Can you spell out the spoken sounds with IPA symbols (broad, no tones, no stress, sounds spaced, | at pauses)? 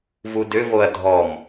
v u d ʏ v o ɐ̯ dʱ ɔ m